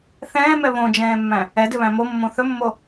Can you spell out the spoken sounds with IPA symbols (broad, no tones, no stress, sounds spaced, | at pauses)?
θ ɛ̃ː m ɛ β õ d͡ʒ ɛ̃ː mː æ̃ | ɛ d ʏ β æ̃ m o mː õ θ ɵ mː o